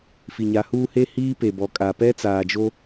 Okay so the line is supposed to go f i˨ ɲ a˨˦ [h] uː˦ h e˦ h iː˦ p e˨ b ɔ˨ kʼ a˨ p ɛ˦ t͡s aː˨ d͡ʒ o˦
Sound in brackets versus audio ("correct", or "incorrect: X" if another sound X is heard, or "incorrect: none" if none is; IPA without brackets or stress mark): correct